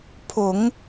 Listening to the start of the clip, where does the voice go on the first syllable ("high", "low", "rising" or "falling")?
low